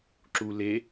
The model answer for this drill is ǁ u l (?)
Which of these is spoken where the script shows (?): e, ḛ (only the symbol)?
e